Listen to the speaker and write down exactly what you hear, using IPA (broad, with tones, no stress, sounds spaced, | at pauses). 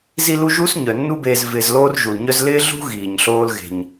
z i˦ l u˦ ʒ u˥ s ɲ œ˩ nː u˦ b eː˨ z v ɪː˨ z l oː˦ r ʒ u˩ l ɲ œ˦ z l ɪː˥ ɮ ṳ˥ ɣ iː˩ ɲ ɬ oː˦ l ɣ e̤˩ ɲ